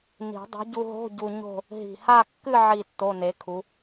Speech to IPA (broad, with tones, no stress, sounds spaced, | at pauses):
n i̤˨˩˦ dˤ o̤˨˥ ɟ u˧ ɦ o̤˧˥˧ ɟ u˧ ɲ o̤˥˧ | ɦ i̤˨˩ h a˥˧ kː ɨ˥˧ ʕ i˥˧ tː o˧˥˧ n e˨˥ kʰ u˨˥